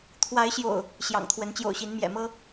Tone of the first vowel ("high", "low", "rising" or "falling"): rising